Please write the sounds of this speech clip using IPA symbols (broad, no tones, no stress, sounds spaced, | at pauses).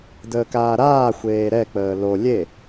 d əː k aː ɾ aː xʷ eː ɾ ɛ k͡p əː l o lʲ e